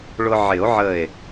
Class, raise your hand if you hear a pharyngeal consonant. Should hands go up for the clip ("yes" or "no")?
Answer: yes